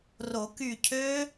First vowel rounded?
yes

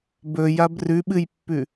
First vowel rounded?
yes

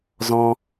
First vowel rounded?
yes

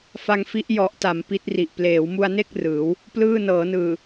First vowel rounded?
no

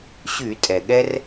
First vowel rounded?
yes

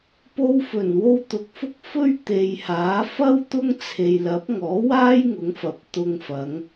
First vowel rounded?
yes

